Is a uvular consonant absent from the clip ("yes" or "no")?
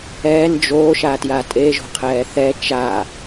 no